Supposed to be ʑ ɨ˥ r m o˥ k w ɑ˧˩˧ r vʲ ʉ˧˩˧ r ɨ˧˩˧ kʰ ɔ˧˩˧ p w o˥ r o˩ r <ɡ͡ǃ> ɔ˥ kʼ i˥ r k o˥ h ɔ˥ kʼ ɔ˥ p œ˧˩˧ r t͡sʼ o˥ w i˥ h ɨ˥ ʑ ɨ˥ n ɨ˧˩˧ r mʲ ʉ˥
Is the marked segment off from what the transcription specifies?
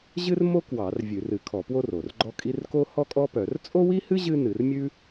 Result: no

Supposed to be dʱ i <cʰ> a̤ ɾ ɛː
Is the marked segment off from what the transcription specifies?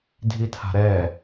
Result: yes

